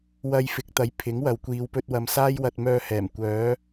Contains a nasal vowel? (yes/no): no